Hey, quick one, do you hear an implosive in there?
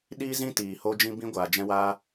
yes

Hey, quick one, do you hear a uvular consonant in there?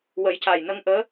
no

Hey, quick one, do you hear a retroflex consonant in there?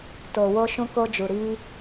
no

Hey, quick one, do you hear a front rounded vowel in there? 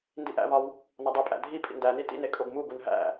no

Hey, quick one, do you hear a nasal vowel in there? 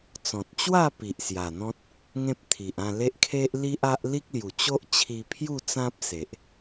yes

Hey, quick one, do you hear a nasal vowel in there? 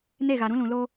yes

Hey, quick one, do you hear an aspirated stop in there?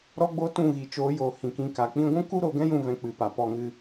no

